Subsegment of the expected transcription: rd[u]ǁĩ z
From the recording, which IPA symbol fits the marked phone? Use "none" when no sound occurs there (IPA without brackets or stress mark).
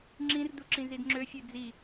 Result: u